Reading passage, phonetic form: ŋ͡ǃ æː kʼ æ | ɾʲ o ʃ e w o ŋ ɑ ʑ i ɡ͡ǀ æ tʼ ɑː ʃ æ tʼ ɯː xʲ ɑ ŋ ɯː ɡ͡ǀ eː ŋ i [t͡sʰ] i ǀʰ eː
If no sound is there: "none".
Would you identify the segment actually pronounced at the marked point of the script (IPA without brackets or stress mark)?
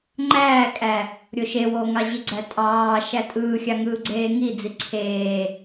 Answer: d͡z